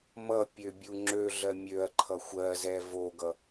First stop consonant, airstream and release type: plain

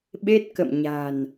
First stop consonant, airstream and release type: implosive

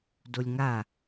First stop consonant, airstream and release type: plain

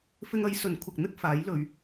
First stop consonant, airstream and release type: aspirated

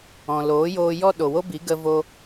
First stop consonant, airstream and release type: implosive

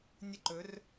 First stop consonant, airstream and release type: click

